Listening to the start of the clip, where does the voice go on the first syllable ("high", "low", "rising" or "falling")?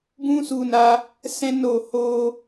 high